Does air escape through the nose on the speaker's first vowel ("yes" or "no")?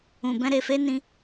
yes